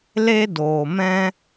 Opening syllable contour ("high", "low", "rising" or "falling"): high